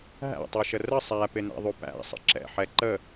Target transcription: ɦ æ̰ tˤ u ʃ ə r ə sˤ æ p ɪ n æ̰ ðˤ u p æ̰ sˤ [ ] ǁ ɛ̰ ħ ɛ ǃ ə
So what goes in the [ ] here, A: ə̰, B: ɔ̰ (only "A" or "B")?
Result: A